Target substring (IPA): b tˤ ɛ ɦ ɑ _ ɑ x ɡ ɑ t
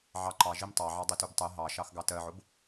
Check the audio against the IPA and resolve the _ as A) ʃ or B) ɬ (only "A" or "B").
A